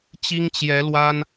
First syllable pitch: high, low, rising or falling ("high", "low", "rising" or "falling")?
high